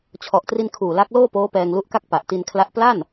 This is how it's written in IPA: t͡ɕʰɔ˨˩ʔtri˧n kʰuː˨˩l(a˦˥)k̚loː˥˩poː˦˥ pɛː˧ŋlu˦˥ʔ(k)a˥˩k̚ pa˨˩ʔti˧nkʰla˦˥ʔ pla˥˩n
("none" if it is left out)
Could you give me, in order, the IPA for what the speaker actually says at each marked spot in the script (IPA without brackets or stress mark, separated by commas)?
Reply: a˦˥, k